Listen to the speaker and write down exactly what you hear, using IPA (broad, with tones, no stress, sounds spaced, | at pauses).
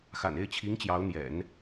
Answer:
x a̰˨˩ n e˥˩ ɪ̯ t͡ɕʰ i˧˥ ŋ t͡ɕ j ɑ˧˥ ʊ̯ n̪ j ɛ̰˨˩˦ n